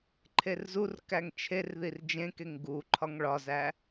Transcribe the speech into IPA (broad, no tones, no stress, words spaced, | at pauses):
ǃʰerzurkæŋ t͡ʃʰerðir d͡ʒẽkeŋ ɡu ǃʰɒŋɭɒzæ